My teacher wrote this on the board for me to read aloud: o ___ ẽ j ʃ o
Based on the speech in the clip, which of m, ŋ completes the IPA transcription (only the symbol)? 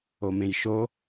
m